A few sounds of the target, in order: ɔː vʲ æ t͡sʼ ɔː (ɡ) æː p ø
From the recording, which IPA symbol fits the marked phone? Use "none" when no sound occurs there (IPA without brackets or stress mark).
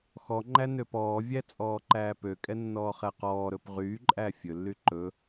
ǃ